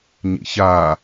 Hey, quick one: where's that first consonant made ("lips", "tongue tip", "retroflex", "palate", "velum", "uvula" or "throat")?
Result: palate